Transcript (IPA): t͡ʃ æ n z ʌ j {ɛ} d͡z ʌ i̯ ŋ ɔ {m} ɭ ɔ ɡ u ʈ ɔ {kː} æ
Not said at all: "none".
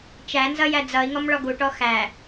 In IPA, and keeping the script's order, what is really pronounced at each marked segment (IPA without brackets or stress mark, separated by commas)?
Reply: æ, m, x